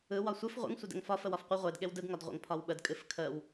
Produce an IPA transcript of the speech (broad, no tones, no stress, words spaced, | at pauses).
ɯ wɒsʷɨf ʁʷə̰ŋ sʷɛdɛ̰ŋfɒ fəwɒfqʷɨ ʁʷed ɠewdɯɡ ŋɒdʁʷə̰ŋ pʰɒwɓəd kʼɨfkʰəw